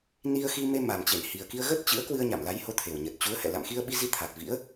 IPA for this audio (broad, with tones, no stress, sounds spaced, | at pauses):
n i˧ ə̯ x i˧ m e˧ m a˨˩ m t͡ɕ e˧˩ n h i˨˩ ə̯ k i˧ ə̯ ɣ ə˦˥ t̚ t͡ɕ ɨ̰˧˥ ə̯ k w ɨ˧ ə̯ ɲ a˧˩ m l a˨˦ j h o˨˦ t̪ʰ e˨˩ w ɲ ə˨˩ t̚ t͡ɕ u˨˦ ə̯ h ɛ̰˧˨ l a̰˧˨ m x i˧ ə̯ ɓ i˧ z i˧ t̪ʰ a˨˩ t̚ v ḭ˧˥ ə̯